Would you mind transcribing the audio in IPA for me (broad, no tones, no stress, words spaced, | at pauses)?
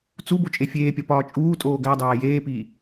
t͡su bot͡ʃʼefʲeːpʲɒ pɒːt͡ʃʼuːtʼoː ɡædˤæː jeːpiː